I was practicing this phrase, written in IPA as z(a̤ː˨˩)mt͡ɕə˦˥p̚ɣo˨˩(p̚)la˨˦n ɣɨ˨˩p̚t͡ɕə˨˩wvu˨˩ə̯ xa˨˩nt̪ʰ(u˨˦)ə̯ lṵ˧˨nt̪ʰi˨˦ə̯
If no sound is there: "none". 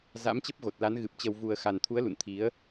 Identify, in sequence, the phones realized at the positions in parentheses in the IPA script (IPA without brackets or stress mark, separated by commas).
a̰ː˧˥, t̚, u˨˦